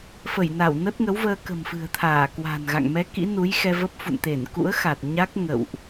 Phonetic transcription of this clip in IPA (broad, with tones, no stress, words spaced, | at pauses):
fə˧˩jna˧˩wnə˦˥t̚ ŋə˨˦wvəː˧kə̤˨˩m fɨ̤˨˩ə̯t̪ʰaː˧˩kwa̤˨˩nɣa̰˧˨ŋ mɛ˨˦ kḭ˧˥nu˨˦jxɛ˧ və˦˥p̚fṵ˧˨nt̪e˧˩n kṵ˧˥ə̯xa˨˩t̚ɲa˦˥k̚ ŋə̰˧˨wʔ